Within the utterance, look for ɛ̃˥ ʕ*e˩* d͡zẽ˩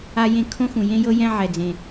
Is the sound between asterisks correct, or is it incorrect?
incorrect